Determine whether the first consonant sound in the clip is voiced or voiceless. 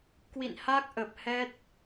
voiceless